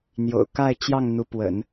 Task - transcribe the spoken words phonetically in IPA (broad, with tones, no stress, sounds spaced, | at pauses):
n̪ j o̰˨˩ ʊ̯ k a˥˧ ɪ̯ t͡ɕ j ɑ˥˩ ŋ n̪ u˧˥ p w ə̰˨˩˦ n